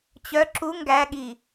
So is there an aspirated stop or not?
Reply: no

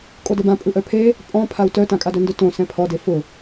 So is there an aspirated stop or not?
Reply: yes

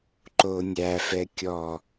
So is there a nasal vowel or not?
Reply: no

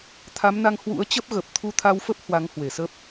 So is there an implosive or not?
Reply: no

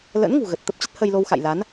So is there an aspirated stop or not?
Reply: no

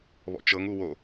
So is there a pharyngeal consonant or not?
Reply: no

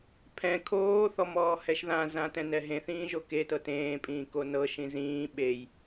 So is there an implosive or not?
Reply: yes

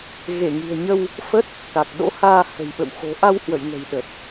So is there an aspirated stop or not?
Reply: no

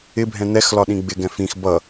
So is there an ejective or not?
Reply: no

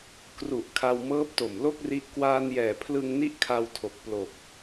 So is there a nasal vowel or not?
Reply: no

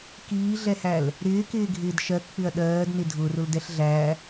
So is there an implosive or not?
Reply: yes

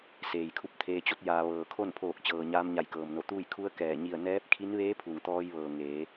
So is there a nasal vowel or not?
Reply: no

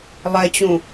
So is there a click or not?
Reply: no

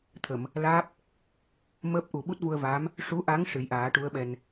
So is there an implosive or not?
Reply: yes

